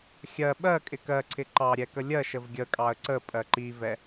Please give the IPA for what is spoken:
xʲ ɜ ɓ ɜ kʼ ɪ k ɜ ǀʰ ɪ ǃ ɑ ɾʲ ɛ k ə lʲ ɜ ʃ ə v ɡʲ ə kʼ ɑ ə̯ ǀ ə pʼ ɜ ǃ i v ɛ

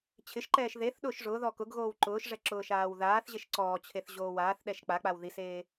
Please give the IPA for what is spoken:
t͡ɕʰ ɪ ʃ ǃ ɛː ʃ ð e θ ɗ ʊː ʃ ʐ ʊː ð ɔ k ʊ ɡ ɣ oː w ǃ ʊː ʃ ʐ ɛ ǁ ʊː ʃ aː w ð aː θ ʑ e ʃ ǀ ɔː t͡ɕʰ e θ ʑ oː w aː θ ɗ ɛ ʃ k͡p a k͡p a w ð i s eː

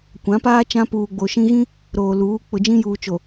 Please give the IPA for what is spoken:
kʷ ã˨˦ p aː˦ t͡ʃ ã˦ p uː˨ ɡ͡b o˨ ʃ ĩ˦ ɣ ĩ˦ | ɾ oː˨ l uː˨˦ k͡p ʊ˨ d͡ʒ ĩ˦ j uː˨ t͡ʃ o˨

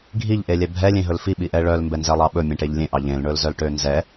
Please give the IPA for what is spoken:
ɡʱ i ʎ ʔ e lʲ ɛ bʱ ɛ lʲ ẽ ɦ ɵ l f i ɓ i ʔ ɛ ɭ œ l m b ɛ n z ɛ lˠ ɑ ɓ ɵ mʲ ẽ ʈ e ʎ lʲ ẽ ʔ ɑ ʎ ẽ l ɳ ɵ l z œ l ʈ ø n z ɛ

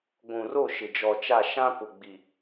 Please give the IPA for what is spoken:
ɡʷ ũ˨ r o˦˨ ʃ ɪ˨ d͡ʒ ɔ˨ t͡ʃ a˦˨ ʃ ã˦ p ʊ˨ ɡ͡b i˨

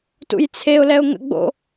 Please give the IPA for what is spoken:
t ṵ j t͡sʰ e ʊ̯ l ɛ ʊ̯ ŋ ə̰ ɡ͡b o̰

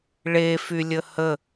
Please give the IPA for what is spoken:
ɭ e f y lʲ ə h ə

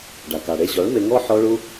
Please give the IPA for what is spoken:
ɖ a˨ k a˨ ɽ e˧ ʑ ɔ˨˦ ɭ m e˧ ŋ ɔ˦ ħ ɔ˦ ɭ u˦

